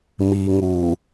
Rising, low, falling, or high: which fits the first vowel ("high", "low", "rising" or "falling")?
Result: low